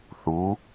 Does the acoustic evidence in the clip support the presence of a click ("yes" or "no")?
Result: no